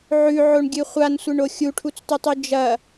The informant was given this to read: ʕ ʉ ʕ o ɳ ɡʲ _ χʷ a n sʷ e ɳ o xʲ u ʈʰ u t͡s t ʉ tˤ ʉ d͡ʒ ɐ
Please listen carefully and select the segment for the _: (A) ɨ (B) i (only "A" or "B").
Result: A